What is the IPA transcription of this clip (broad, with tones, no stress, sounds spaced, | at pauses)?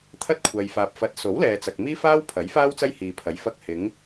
t̪ʰ ɐ˥ t̚ kʷʰ ɐ˨ j f aː˨ p̚ f ɐ˨˥ t̚ s o˨˥ w l ɛː˨ t͡s ɐ˨ k̚ m iː˥ f aː˥ w pʰ ɐ˨˥ j f aː˥ w t͡s ɐ˥ j h iː˨ pʰ ɐ˨˥ j f ɐ˧ k̚ h ɪ˨˧ ŋ